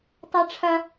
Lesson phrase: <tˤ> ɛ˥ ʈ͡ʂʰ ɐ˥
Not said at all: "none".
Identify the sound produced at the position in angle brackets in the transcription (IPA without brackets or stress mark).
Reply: tˤ